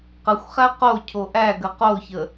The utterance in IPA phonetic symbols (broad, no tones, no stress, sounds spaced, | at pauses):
q ə xʷ χ æ q o cʰ o ʔ æ ɡ ə q o ç ə